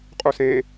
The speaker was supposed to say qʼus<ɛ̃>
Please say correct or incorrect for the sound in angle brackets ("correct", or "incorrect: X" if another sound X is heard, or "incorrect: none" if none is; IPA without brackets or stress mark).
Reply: incorrect: ẽ